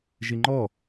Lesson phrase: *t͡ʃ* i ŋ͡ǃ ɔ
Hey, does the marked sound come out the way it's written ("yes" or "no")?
no